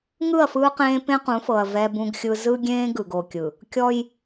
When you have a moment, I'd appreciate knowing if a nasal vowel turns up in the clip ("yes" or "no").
yes